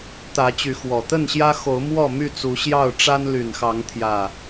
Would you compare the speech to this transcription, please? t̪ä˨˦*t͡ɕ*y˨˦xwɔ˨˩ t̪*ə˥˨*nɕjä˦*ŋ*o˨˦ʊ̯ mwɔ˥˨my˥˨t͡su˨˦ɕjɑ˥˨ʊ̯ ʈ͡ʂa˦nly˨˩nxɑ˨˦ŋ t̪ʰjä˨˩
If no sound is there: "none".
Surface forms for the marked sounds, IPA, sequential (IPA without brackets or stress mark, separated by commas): t͡ɕ, ə˥˨, x